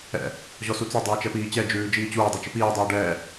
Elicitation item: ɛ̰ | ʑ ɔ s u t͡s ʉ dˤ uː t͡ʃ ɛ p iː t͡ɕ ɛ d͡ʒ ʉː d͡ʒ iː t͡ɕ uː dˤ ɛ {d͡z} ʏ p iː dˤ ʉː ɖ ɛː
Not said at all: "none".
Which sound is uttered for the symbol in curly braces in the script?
t͡ʃ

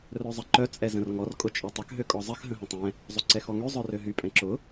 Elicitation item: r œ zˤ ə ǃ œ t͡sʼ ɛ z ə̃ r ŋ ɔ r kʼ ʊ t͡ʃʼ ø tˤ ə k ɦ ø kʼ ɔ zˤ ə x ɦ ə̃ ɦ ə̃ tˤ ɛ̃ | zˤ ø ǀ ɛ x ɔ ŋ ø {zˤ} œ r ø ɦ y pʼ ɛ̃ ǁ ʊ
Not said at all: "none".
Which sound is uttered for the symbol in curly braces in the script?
zˤ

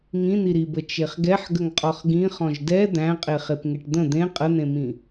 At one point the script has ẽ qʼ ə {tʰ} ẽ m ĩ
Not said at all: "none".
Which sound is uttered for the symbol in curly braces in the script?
n̪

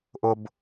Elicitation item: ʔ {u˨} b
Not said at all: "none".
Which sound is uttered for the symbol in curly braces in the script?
ʊ˨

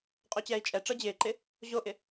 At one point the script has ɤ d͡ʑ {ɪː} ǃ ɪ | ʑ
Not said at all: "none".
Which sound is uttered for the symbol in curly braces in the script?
ɪː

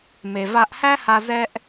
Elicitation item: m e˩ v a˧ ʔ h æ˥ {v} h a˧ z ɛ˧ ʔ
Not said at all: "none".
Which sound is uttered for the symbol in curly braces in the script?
none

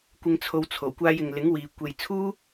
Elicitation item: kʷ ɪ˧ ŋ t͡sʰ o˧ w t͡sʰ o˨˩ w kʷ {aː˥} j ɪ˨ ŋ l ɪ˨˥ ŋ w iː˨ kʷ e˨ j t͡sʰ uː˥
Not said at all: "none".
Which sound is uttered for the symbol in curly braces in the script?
aː˧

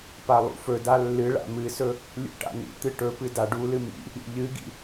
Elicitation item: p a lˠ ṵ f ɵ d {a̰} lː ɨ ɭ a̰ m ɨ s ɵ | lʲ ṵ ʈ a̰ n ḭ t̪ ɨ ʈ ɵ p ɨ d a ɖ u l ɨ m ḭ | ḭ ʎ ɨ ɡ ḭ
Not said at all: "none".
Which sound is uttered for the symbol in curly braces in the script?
a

